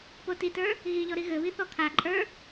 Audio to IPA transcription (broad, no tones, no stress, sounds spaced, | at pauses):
p o t i t ə˞ | ɣ i ʎ ɔ ɾ i ɣ ɘ β i θ ɔ kʰ a ǃʼ ə˞